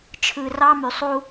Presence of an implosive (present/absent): absent